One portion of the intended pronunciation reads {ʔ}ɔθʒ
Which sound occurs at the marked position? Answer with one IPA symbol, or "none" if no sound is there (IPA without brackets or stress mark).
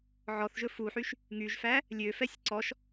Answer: ʕ